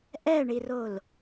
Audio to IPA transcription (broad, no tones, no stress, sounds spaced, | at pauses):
ʔ ɛ ɳ i r o l